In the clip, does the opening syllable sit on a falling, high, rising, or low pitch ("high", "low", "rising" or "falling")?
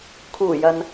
low